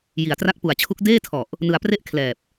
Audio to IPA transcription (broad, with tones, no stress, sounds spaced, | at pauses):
j i˨˩ a̯ t r a˦˥ k̚ p u˨˩ a̯ t͡ɕʰ u˦˥ k̚ d eː˥˩ tʰ ɔ˨˩ ʔ | n ɯ˧ a̯ p r e˥˩ ʔ kʰ l ɛː˨˩ p̚